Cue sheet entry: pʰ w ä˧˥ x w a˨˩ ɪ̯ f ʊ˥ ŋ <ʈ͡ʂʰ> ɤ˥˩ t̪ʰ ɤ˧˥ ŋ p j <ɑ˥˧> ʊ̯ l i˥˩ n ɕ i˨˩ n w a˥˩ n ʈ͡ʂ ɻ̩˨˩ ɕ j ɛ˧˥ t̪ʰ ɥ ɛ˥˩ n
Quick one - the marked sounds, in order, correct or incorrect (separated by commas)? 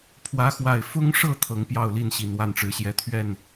incorrect, correct